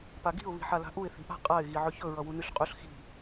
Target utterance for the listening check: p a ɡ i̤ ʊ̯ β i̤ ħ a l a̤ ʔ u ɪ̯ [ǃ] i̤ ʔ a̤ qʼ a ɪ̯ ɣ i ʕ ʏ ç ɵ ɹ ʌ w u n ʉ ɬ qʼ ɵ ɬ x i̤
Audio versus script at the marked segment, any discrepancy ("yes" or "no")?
yes